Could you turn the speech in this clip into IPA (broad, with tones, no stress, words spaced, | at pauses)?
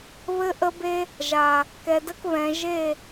βɘ˧ʔə˧be˧ | ʒa˨ | kɛ˨də˧k βɛ̃˨ ʒe˦˨